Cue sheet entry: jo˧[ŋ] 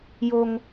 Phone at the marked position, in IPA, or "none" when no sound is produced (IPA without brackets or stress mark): ŋ